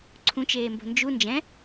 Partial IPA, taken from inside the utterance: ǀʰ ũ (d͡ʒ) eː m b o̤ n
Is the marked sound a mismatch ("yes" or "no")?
yes